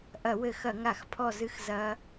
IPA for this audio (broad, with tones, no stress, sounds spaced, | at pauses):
ʔ ɐ˧˩˧ w ɘ˧˩˧ x ɐ˧˩˧ ŋ a˧˩˧ x pʰ ɔ˦˨ z ɨ˦˨ x z ɐ˦˥